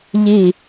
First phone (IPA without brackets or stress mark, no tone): ʎ